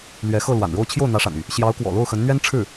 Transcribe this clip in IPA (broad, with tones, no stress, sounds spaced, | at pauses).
l ɥ ɛ˧˥ x ɤ˥˩ l w a̰˨˩ n ɻ o˥˧ ʊ̯ t͡ɕʰ j o˥˩ ʊ̯ n̪ ä˧˥ ʂ a̰˨˩ n y˥˩ | ɕ j ɑ˧˥ ʊ̯ k w ɔ̰˨˩ l o˥˩ ʊ̯ x ə˧˥ n n̪ ɥ ɛ˥ n ʈ͡ʂʰ ɻ̩˥˩